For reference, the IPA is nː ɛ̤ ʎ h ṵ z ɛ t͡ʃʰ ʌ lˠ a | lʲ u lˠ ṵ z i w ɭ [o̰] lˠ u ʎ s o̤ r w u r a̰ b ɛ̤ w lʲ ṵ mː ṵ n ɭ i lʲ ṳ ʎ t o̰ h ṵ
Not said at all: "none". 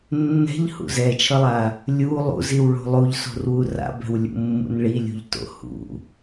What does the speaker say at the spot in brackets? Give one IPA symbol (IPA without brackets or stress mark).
o̤